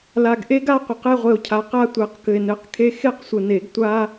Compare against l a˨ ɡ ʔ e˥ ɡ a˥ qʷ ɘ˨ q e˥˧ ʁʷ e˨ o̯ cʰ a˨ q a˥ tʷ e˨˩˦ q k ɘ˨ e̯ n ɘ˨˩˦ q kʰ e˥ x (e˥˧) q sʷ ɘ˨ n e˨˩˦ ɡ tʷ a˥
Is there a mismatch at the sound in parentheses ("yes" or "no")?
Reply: no